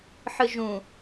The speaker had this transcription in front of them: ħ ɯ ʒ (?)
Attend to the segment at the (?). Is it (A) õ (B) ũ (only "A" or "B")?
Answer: B